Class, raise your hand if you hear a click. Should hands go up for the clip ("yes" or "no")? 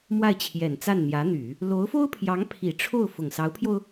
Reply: no